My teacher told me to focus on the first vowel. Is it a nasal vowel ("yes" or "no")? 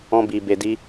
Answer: yes